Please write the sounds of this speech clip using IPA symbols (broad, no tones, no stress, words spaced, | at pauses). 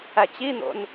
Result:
æt͡ɕin̪o̰n